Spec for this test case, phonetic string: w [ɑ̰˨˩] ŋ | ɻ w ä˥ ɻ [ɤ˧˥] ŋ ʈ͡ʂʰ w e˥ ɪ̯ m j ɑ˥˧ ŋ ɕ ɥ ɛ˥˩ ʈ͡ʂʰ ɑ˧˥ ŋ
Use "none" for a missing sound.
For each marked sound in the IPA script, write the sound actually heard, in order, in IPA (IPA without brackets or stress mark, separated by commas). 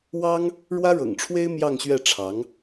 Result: ɑ˥, ɤ̰˨˩